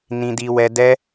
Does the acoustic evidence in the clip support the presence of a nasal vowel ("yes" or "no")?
yes